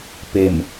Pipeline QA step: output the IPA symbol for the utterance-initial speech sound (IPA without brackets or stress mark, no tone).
p